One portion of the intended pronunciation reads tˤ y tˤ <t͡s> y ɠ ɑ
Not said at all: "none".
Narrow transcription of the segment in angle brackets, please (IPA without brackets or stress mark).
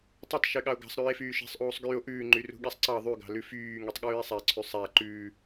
ʃ